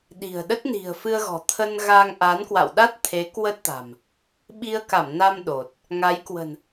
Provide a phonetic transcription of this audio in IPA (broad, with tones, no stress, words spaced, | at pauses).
ɗi̤˨˩ə̯ɗə˦˥t̚ ni̤˨˩ə̯fɨ˧ə̯ɣɔ̤˨˩ t̪ʰə˧nɣa˧ŋ ʔa˨˦nkwa̰˧˨w ɗa˦˥t̚t̪ʰe˨˦ kwə˦˥t̚t̪a̤˨˩m | ɓi˧ə̯ka˧˩mna˧m ɗo˨˩t̚ | ŋa˨˦j kwə̤˨˩n